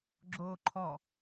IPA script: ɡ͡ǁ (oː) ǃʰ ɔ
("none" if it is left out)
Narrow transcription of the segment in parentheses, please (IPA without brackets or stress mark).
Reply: oː